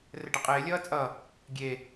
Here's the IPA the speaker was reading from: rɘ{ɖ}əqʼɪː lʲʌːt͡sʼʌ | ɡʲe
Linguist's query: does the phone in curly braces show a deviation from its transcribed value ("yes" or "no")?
no